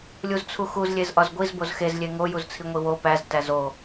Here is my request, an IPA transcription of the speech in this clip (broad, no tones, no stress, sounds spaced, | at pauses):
lʲ u z t͡sʰ u x u z lʲ e z ʔ ɒ z ɡʷ i z b o z x e z lʲ e ŋ o j u z t͡sʰ i ŋʷ i w o p æ z t æ z o